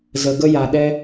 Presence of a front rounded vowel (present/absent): absent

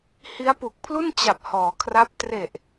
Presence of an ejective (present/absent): absent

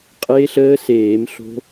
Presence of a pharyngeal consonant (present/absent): absent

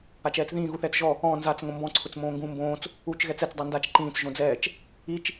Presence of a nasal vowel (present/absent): present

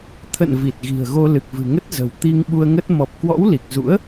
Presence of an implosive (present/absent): present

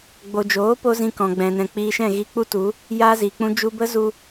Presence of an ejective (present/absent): absent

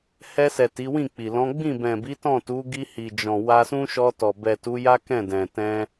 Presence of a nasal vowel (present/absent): present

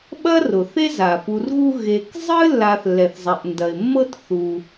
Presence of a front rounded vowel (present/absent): absent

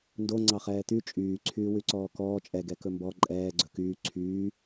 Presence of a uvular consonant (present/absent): present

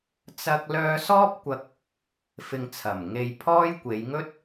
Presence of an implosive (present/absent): absent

